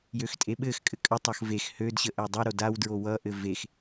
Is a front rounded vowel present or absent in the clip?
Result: present